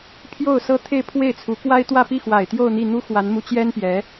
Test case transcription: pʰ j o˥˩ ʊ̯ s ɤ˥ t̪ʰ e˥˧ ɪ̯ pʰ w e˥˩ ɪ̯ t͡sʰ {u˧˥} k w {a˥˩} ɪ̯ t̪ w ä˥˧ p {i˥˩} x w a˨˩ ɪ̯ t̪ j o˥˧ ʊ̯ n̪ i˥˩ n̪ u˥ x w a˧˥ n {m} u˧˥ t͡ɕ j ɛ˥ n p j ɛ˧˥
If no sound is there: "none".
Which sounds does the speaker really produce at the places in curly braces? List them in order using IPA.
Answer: u˧˥, a˥, i˥˩, m

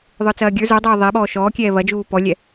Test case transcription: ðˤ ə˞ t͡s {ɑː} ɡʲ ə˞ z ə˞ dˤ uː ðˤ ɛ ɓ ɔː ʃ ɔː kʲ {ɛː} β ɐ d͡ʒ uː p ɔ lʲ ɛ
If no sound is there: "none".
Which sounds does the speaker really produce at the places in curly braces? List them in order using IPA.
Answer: ɐː, ɛː

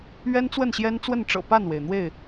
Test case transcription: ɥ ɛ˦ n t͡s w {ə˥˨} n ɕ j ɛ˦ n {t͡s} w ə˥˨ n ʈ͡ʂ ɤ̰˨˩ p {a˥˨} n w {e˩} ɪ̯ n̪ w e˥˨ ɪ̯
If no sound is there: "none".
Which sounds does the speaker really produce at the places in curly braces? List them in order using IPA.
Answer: ə˥˨, t͡s, a˥˨, e˩

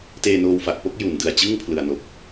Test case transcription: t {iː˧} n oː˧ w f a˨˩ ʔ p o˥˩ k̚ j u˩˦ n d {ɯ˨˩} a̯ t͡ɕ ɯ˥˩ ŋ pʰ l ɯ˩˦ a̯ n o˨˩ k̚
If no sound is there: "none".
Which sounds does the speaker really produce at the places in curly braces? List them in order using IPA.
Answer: eː˧, ɯ˨˩

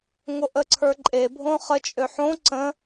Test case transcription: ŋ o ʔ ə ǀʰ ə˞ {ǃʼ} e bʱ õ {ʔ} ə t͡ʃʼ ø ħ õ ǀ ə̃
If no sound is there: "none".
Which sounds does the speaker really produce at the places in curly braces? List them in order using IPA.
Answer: ǃʼ, χ

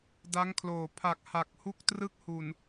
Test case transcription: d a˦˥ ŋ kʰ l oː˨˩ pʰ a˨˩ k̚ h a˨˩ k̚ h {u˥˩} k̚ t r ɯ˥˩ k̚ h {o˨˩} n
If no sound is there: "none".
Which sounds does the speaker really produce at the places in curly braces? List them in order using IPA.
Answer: u˥˩, u˨˩

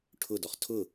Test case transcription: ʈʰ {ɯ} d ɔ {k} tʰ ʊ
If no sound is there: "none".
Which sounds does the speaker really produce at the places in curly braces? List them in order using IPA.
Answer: ʊ, χ

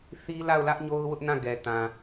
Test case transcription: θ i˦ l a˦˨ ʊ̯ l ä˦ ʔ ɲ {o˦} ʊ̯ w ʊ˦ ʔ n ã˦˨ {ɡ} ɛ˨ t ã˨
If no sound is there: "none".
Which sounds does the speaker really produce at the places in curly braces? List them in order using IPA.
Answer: o˦, ɡ

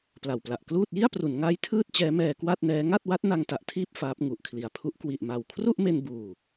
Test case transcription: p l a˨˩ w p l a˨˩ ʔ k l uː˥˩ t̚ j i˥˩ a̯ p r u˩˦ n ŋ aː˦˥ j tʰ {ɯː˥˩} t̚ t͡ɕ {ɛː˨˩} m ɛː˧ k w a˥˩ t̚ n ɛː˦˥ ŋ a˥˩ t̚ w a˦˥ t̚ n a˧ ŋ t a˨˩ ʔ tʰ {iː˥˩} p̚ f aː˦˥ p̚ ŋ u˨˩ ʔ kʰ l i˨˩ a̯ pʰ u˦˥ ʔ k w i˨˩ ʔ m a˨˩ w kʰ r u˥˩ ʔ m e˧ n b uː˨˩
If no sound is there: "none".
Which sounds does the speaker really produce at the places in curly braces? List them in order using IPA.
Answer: ɯː˥˩, ɛː˦˥, iː˥˩

